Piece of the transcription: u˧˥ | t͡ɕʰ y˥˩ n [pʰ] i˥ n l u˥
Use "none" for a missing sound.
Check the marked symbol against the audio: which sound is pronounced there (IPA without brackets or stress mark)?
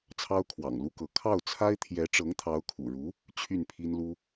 pʰ